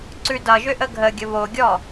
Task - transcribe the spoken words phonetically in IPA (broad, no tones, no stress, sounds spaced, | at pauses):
ǀ ʉ d ʌ ʒ ʏ ʔ ə ɡʱ ə ɡʲ ə β o ɡʲ ɔ